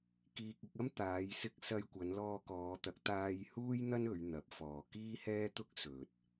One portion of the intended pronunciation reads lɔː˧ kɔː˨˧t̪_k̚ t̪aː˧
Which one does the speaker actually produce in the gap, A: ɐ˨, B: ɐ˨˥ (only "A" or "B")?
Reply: B